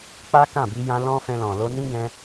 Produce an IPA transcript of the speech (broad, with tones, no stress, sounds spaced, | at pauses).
k͡p a˦ k ã˦˨ b i˧ j ã˧ l ɔ̃˦ f ɛ̃˧ l ɔ̃˨ l o˧ n ĩ˦ ɡ ɛ̃˧